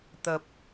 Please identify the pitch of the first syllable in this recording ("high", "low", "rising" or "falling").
low